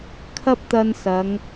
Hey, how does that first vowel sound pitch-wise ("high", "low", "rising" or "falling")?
high